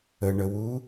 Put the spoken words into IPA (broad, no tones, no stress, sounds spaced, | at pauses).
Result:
ə ɳ ə w u